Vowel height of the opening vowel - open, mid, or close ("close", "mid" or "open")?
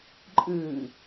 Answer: close